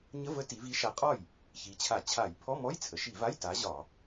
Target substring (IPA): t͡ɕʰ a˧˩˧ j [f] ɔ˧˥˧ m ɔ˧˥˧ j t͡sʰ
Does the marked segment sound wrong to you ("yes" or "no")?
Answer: yes